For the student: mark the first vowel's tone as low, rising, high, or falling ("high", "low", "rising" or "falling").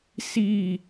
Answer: falling